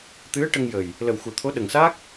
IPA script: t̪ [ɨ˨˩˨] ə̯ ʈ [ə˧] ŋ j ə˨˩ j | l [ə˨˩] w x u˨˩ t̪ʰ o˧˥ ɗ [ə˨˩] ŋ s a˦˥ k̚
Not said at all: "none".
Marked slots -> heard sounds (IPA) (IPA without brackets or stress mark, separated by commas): ɨ˧˥, ə˧, ə˨˩, ə˨˩